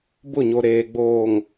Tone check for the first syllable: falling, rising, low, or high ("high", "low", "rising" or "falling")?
falling